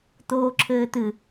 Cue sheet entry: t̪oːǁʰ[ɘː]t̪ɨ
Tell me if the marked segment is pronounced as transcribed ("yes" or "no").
yes